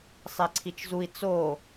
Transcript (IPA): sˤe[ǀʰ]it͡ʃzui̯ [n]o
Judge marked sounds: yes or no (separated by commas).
yes, no